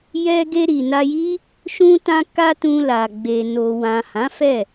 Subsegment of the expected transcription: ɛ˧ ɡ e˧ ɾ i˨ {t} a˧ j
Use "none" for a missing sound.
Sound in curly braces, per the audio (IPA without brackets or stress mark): n